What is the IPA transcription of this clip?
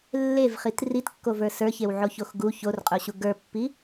lːevχit ritkːovə˞ sə˞çewʕoçox ɡu çorqʼoɕu ɡə˞pːi

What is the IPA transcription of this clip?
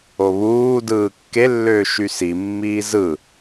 oβuːdɯː kːelːøː ʃysimːiː zɯ

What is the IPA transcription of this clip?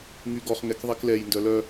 ŋyɡɔχ ŋɛkðˤiklɛj ndœlœ

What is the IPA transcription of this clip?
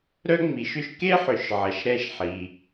ɾœ˥ŋ͡mi˨˦ʃʏ˥ʃ ke˥ħʏ˨ʃ ʕɐ˨˦ʃɾɛ˥˧ʃħi˨

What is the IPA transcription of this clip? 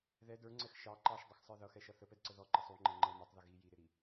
ðɛ də˞ŋ͡ǀɛx ʃɑ ǃɑʃdˤɪxsˤə˞ ðʌxɛʃʌ θəpɛdǀə ðɔǃə sˤuŋ͡ǃɛ ŋ͡ǃə mʌtˤðə ɣi jiɾɪɾi

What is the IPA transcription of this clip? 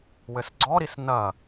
wɘsɡ͡ǀɔɾis nɐ

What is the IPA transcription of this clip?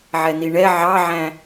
ʕɛniɳɛ ʕɑʕæ̃

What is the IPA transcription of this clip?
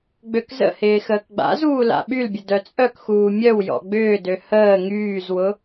ɡ͡bøkzə̰hɪː xəːkɡ͡ba̰zuː la̰ɓylbʲə dœt͡sʼœkxuː mʲœwjɔ̰ ɡ͡bʏːdø həː ŋyːzwʊ

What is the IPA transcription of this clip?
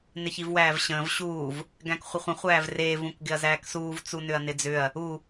nɪçivwæːvɕə̃ːv ɕuːv | ɡæ̃kχʷəχʷə̃ χʷæːvreːv ũkɡɪɐ̯zæːksuːv t͡sunʏɐ̯nɪd͡zʏɐ̯ | u

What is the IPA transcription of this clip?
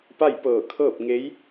pa˥˨jpɤː˧˩kʰɤː˥˨p̚ ŋe˧˥j

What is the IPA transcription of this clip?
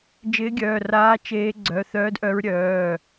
d͡ʒɪː˧˥ɡʲœː˩˧˩raː˧˥ t͡ʃeː˧˥ ɡ͡ǀœ˩˧˩θœː˧˥dʔœ˧˥ɹ ɾʲœː˩˧˩

